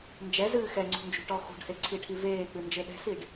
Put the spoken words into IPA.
nd͡ʒɛzɨː xɛŋ͡ǀṳnd͡ʒṳ ʈɔxṳɖhe ǀʰiʈʰiveːk͡pɨ nd͡ʒɘɗɛ̤siɖ

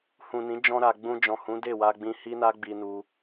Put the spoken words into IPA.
hũ˨nĩ˨˦ d͡ʒɔ̃˧ɾa˨ ɡ͡bũ˧d͡ʒɔ̃˨hũ˨˦ de˦˨wa˧ɡ͡bĩ˧ hi˦na˦ɡ͡bi˧nu˧

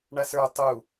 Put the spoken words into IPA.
ɳasə˞ tˤu

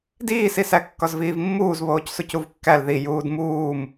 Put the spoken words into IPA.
diːsisæ kːɒzviːvmːuːz βoːcsucuvkːæl ði juːdmuːm

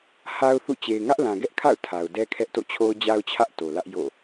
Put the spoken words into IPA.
ha˦ʊ̯θṵ˦˨ t͡ɕe˨ɪ̯ŋä˦ʔlã˨ ɡɛ˦ʔkʰa̰˦˨ʊ̯ tʰa˨ʊ̯ dɛ˦kʰɛ˦ʔto̰˦˨t͡ɕʰo˦ʊ̯ d͡ʑa˦ʊ̯t͡ɕʰä˦ʔ to˨ lä˦ʔ jo̰˦˨

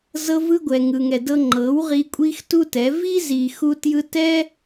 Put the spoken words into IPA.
zɤ˧vɯ˧ɡʷɛ˨ ŋɯ˨ŋɛ˨dɤ˧ ŋ͡ǃɤ˨˦wʁi˧ kʷʼi˦xtu˦tɛ˨˦ vi˦zi˨ xu˦tjɯ˦ tɛ˦

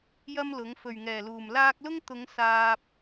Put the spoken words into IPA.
jɐ˥mlʊ˨˥ŋ fɵ˨˩ɥŋɛː˨˩luː˨˩m laː˧k̚lʊ˥ŋ t̪ʊ˨˧ŋ saː˧p̚

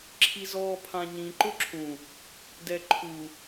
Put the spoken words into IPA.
ǁʰizɔːpʰãɲĩ ǃʊǁʰũ | dɛǃʰu

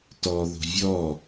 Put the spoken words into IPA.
tɔ ðo̤vʲɔ

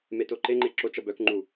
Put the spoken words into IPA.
metoǃeŋ͡ǃe ǁot͡ʃ ʌbœkŋ͡ǃu

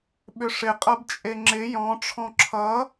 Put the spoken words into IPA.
ɓʏʂɪ qʼʌbt͡ʃʼeŋ͡ǁɪ jɔ̃ ʈ͡ʂʰɔ̃ǁʰʌ

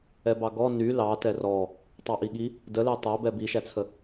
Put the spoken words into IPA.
ɛbɑɡɔ ny lɑ tɛrɔ | tˤɑʔiɠi | dəlɛ tˤæbɛ biʃæt͡sʰə

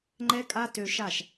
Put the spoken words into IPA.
ŋ͡ǃɛ˦kʼa˦tø˧ ʃa˦˨ʃ

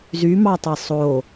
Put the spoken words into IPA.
zymɑtˤi sˤo

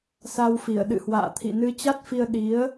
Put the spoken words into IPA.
sa˧wfi˧˩ə̯ ɗɨ̰˧˨hwa̰ː˧˨t̪ʰḭ˧˨ nɨ˨˦t͡ɕa˦˥t̚fi˧ə̯ ɗi˨˦ə̯

